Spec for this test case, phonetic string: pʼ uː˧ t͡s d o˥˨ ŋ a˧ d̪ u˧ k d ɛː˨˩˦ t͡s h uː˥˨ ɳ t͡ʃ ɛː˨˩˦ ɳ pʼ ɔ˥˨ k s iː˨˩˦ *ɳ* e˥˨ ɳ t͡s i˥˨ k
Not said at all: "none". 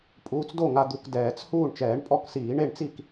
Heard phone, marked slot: ɳ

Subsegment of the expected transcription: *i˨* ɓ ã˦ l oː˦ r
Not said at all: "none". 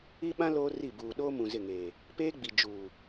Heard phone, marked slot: i˦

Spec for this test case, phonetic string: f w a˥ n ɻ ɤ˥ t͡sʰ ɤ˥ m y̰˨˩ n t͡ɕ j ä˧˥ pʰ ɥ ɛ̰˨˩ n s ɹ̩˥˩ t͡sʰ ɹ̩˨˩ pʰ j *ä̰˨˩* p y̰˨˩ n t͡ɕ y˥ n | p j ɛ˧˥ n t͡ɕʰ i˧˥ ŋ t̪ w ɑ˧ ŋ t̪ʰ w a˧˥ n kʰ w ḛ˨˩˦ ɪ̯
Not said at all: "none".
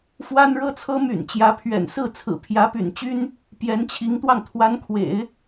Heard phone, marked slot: ä˧˥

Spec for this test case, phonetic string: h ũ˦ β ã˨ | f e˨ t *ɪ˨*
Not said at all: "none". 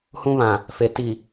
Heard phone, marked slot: i˨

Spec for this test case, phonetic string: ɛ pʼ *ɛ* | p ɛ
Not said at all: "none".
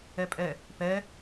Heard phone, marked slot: ɛ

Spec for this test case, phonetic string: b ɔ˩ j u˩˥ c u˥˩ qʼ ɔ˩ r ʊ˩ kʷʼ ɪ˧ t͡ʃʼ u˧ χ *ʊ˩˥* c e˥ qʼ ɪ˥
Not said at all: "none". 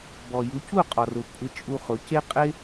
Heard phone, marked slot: ʊ˩˥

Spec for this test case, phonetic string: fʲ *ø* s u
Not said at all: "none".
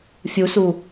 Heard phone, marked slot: u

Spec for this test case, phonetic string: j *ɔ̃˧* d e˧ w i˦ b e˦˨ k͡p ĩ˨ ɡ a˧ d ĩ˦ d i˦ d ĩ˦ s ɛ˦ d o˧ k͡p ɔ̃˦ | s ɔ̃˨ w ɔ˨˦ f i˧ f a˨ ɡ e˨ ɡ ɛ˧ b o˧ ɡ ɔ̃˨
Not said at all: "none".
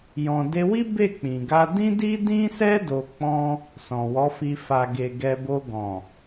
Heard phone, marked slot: ɔ̃˧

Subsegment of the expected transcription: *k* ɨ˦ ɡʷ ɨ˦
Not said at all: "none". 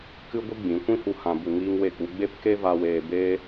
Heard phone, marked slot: k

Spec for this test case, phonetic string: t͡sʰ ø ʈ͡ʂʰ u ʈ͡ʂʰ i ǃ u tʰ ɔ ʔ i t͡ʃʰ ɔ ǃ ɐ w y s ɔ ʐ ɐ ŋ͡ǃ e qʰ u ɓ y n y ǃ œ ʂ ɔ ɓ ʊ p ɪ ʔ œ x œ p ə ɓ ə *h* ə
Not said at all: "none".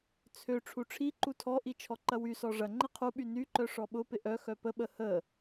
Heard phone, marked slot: h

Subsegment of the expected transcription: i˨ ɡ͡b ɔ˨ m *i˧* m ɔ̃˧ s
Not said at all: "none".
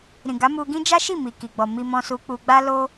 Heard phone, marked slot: i˧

